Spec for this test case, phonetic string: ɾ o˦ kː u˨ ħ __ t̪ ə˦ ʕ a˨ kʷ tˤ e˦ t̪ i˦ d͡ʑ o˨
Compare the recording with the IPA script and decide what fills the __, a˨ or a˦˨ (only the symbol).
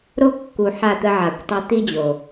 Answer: a˦˨